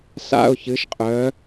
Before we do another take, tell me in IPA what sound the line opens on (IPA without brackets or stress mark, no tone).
s